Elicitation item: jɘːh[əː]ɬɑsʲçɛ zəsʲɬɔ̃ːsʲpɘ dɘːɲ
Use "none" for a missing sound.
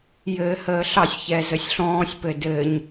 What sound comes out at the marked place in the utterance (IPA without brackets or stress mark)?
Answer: əː